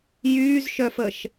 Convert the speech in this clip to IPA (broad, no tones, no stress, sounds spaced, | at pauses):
j yː z ʃ œ f ə ʃ